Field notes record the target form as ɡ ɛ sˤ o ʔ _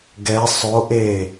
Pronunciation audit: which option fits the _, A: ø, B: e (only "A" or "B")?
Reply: B